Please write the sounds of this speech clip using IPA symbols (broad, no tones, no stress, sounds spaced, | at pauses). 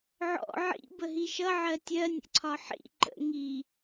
ʕ ɔ̰ ʕ ḭ b ə ɦ i ʃ ʌ ʕ ɜ tʲ ɜ nʲ ə̰ ǀʰ ɒ ħ ḭ ǃ ə̰ ŋ i